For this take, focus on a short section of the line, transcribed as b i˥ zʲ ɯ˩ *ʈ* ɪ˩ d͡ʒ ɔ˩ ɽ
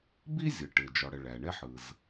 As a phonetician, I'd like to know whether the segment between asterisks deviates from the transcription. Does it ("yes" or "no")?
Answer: no